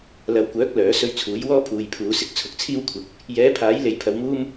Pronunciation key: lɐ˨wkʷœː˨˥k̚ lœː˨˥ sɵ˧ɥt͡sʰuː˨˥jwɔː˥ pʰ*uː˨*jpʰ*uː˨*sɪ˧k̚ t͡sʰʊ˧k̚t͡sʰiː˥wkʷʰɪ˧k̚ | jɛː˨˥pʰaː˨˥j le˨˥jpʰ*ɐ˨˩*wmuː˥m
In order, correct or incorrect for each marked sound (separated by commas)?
correct, incorrect, incorrect